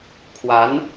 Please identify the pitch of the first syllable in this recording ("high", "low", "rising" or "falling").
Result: rising